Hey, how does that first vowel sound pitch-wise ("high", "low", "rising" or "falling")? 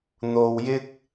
low